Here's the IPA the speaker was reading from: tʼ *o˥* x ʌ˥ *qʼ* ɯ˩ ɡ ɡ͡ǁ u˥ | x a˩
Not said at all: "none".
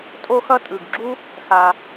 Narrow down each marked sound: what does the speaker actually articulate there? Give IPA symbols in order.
o˥, tʼ

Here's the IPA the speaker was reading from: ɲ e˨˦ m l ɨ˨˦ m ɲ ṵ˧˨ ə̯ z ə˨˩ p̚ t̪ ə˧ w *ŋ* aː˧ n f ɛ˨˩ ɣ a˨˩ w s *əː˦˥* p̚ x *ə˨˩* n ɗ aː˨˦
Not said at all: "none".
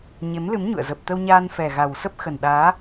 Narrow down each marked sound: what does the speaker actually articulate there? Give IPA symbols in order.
ɲ, ə˦˥, ə˨˩

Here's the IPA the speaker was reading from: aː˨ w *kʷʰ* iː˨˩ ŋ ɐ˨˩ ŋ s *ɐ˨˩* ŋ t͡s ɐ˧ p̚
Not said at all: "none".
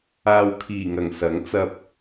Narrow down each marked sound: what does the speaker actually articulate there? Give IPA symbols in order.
kʰ, ɐ˨˥

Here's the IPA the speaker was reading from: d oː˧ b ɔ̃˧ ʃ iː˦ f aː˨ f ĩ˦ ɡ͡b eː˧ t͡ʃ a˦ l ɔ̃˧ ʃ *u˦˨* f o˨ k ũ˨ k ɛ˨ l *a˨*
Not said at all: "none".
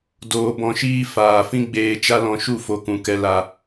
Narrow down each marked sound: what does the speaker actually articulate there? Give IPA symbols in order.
u˦˨, a˨

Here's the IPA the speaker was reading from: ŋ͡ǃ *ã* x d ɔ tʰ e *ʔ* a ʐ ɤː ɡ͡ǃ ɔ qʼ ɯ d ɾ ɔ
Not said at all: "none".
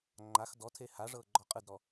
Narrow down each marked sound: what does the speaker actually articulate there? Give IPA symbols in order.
a, h

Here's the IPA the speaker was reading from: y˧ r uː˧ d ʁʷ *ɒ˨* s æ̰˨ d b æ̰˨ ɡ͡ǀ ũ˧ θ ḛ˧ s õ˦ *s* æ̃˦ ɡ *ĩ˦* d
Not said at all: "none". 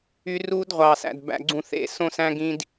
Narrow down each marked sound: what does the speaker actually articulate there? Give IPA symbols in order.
ɑ˨, s, ĩ˦

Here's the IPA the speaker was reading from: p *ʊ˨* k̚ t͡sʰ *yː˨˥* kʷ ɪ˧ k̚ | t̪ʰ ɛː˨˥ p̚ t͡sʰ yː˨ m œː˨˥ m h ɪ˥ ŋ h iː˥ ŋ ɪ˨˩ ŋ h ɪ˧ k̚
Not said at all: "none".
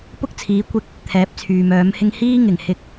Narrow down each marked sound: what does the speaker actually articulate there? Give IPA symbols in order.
ʊ˥, iː˨˥

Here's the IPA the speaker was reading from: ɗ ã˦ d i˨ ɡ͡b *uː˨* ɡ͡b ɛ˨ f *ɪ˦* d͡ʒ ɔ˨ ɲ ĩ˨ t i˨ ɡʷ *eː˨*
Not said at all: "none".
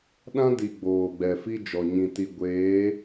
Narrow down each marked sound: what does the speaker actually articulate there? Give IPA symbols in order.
oː˨, i˦, eː˨˦

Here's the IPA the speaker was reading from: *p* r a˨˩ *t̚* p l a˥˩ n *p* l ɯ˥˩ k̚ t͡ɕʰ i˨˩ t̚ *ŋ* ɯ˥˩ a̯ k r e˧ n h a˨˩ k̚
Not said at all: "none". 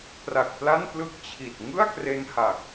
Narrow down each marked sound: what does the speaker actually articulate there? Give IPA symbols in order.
p, k̚, p, ŋ

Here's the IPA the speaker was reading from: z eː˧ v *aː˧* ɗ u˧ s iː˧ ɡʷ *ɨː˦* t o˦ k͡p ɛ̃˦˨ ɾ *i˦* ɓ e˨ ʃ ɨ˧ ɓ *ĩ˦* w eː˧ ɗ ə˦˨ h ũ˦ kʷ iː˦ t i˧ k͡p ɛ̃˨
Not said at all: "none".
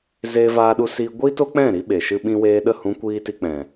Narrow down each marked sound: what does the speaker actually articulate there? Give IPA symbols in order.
aː˧, iː˦, i˦, ĩ˧

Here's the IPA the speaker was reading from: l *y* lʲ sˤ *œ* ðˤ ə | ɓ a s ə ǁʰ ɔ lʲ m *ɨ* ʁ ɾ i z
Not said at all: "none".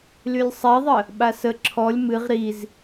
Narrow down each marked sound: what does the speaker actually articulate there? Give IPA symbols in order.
y, ɛ, ɨ

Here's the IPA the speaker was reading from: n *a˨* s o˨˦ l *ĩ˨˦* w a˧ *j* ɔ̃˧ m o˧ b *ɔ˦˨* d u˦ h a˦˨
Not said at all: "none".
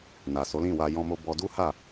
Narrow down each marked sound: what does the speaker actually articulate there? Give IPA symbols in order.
a˨, ĩ˦˨, j, ɔ˧

